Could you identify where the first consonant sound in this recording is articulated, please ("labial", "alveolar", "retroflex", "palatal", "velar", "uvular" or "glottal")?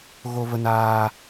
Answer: velar